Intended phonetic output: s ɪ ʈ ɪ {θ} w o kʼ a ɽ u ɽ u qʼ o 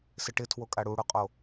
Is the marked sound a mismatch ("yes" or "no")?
yes